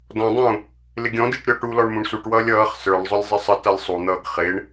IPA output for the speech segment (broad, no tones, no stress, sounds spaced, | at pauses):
d ɔ̃ dˤ ũː | l ɪ ɡʲ ɔ̃ d ɪː ʈ ɾʲ ɔ ʈ u l ɔ ɳ m ũ ɳ s u ʈ w ʌː lʲ ʌː χ s ə˞ ɳ zˤ ʊ lʲ zˤ ɪ sˤ ə t ʌ lʲ sˤ u n̪ ʌː ɡ χ ɪː ɳ